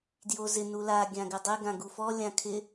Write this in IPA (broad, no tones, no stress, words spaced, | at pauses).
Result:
djozɪ nula ɡʲãɡɪdˤɪ ɡãɡufɔ lʲãkʰɪ